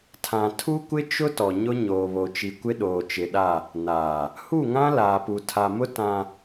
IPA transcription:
tʰã˨tʰu˦kʷɪ˦ t͡ʃʊ˦ tɔ˨ɲʊ˦ ɲoː˨βo˨t͡ʃi˨ kʷɪ˦ɗoː˨t͡ʃɪ˨ɗa˦˨ | naː˨ | hu˦˨ŋã˦ laː˨pu˨ tʰa˨mʊ˦ tã˨

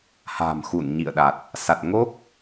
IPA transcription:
ha̤˨˩mxu˧˩n ɲḭ˧˨ə̯ɗa˨˩t̚ | sa˨˩t̚ŋo˦˥k̚

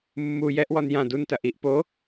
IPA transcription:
mːu jɛʔwɔn jã duntɐ ʔiʔ po

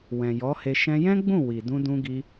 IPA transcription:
wɛ̃˨jɔ˨˦he˧ ʃɛ̃˧jɛ̃˦ɡ͡bũ˦˨ wi˨ dũ˧dũ˧ɡi˧

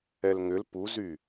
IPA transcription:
ɛlŋʏl puzy

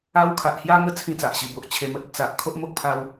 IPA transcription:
a˦w kʰa˨ʔhja˦ŋə˥˧ t͡sʰĩ˥˧t͡sa˨ʔɕi˨˩bo˨ʔ t͡ɕʰe˨˩mə˦t̚ə˨˩ t͡sa˨ʔ kʰo˦ʔmo˦k̚pʰa˧w

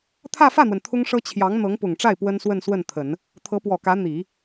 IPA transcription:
t̪ʰä˥˧fä˥˩n̪wə˩n t̪ʰʊ˥ŋʂɤ˥ t͡ɕʰjɑ˧˥ŋ n̪ɤ˧˥ŋpʊ˨˩ŋʈ͡ʂa˥˩ɪ̯ pwə˥nswə˥˧nswə˥˩n t̪ʰə˨˩˦n | t̪ʰɤ˧˥pwɔ˨˩kä˧˥ n̪i˨˩˦

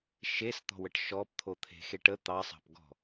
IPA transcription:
ʃest̪ɔ̤wəʈ ʃɔpt̪ʰot̪ʰe̤xeʈ ə t̪ɑsˤɑ̤pɡɔ̤

